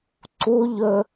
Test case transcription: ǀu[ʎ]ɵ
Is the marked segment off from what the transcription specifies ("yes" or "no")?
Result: no